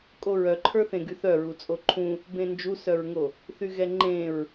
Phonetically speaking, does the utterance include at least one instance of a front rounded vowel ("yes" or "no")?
yes